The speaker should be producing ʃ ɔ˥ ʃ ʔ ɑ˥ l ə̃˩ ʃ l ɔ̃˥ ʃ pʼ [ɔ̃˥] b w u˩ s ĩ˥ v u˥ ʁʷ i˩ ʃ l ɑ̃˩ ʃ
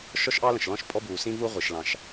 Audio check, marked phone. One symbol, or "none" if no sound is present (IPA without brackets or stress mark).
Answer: ɔ˥